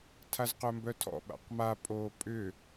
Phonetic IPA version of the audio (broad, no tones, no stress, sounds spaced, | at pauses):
tʰ a z q œ m b œ tʰ ɔ̰ ɓ a̰ q m a pʼ oː pʼ ʏ